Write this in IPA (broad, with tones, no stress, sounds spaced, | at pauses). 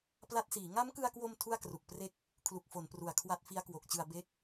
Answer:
p l a˦˥ t̚ s iː˩˦ ŋ a˦˥ m k ɯ˧ a̯ k w o˧ m tʰ u˥˩ a̯ k r u˨˩ k̚ p r e˥˩ k̚ | kʰ l u˨˩ k̚ f o˩˦ n p r u˨˩ a̯ kʰ w a˦˥ t̚ f i˦˥ a̯ k w o˨˩ k̚ t͡ɕ ɯ˧ a̯ b e˦˥ k̚